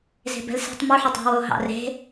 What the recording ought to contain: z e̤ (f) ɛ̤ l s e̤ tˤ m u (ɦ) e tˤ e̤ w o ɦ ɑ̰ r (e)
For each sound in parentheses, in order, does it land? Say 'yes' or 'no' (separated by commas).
no, no, no